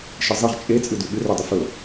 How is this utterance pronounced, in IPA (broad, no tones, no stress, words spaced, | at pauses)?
ʃɨzˤiʁ t͡ʃʼe t͡sʼɨdʉɠɨ rodˤɨfɵ